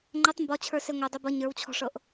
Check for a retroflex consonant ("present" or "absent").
present